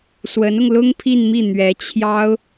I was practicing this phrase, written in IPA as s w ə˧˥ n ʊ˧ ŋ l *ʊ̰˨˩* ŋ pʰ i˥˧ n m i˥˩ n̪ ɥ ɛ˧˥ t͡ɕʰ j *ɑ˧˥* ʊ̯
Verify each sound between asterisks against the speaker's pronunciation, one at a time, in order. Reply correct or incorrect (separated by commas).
incorrect, incorrect